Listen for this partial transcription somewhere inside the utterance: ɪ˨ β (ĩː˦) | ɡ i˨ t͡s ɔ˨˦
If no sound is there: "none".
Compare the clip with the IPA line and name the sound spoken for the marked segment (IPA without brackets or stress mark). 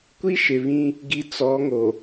ĩ˦